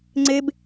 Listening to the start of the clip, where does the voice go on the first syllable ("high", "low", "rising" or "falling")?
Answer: high